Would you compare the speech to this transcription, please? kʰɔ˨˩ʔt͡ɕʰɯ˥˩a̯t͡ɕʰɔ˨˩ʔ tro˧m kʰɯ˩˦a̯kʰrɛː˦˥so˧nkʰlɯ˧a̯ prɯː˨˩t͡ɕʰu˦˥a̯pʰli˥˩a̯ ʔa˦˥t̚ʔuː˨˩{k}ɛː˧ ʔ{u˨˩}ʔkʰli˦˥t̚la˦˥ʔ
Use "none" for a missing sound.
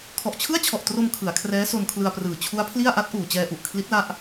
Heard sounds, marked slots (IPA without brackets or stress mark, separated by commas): t͡ɕ, u˨˩